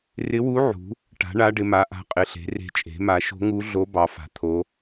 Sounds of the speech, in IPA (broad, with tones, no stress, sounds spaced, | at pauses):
r ɪ˧˥ w u˧˥ ʕ ṳ˩˥ | ʈ a̤˩˥ ɳ a˧˥ ɖ ɪ˩˥ m a˩˥ ʔ a̤˧˥ qʼ ɪ˩˥ ɬ e̤˩˥ r e̤˧˥ t͡ʃʼ e̤˩˥ m a˩˥ ʃ o̤˧˥ ŋ u˧˥ ɮ o˧˥ b ɑ˩˥ f a̤˩˥ t̪ʰ o˧˥